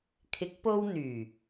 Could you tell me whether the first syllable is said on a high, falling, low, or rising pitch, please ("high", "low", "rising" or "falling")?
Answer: rising